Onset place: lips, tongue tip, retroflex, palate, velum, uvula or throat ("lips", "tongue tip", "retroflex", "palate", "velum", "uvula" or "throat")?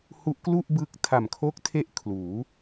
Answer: throat